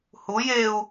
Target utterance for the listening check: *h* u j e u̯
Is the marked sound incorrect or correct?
correct